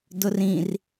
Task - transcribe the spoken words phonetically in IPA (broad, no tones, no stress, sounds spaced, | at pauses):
d ʊ r ĩ r